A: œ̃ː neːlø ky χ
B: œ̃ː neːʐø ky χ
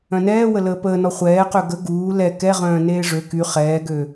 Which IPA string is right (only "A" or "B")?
B